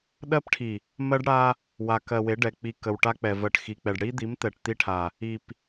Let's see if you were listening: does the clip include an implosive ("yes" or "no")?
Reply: yes